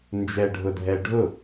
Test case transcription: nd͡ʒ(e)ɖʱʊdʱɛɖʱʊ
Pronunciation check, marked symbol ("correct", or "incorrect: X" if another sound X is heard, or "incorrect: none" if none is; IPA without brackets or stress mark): incorrect: ɛ